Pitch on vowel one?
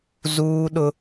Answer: high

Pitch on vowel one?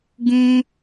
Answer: high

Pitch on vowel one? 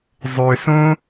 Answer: low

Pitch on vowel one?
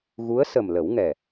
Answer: rising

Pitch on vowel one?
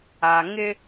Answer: low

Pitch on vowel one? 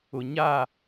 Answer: low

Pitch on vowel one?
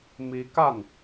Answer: rising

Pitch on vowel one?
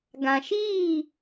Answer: low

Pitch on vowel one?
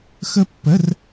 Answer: high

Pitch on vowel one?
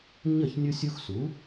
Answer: falling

